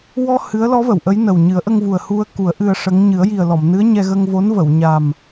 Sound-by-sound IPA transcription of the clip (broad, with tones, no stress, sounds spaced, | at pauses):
w ɔ˧ h ɨ˧˥ ə̯ l ɔ˧˥ v ə˨˩˨ w ʔ ə˧˥ j n ə˨˩ w ɲ ɨ˨˩˦ ə̯ ʔ ə˧ ŋ v u˨˩ ə̯ h u˧ ə̯ k u˨˩˦ ə̯ ʔ ɨ˧ ə̯ ʂ ə˧˥ ŋ ɲ ɨ˨˩˦ ə̯ j i˨˩ ə̯ l ɔ˨˩˨ m n ɨ˧˥ ə̯ ɲ ɛ˧ ɣ ə˧ ŋ v o˧˥ n v ə˨˩˨ w ɲ a˨˩ m